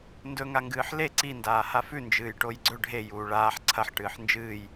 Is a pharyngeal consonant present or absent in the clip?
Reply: present